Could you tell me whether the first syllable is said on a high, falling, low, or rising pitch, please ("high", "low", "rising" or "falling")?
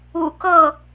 low